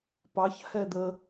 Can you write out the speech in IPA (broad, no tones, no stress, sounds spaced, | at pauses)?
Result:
p ɑ ç h ɛ d̪ ə